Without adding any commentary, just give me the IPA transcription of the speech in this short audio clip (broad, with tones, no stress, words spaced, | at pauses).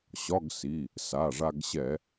ɕɒ˧˥˧ɡsi˩˧˩ | sa˩˧˩ʐa˧ɡɕɛ˧˩˧